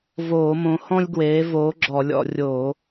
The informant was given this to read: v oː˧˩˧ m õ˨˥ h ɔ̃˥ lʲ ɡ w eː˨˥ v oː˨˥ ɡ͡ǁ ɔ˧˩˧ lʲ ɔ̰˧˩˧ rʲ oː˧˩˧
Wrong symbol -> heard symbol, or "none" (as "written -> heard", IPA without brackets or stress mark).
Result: none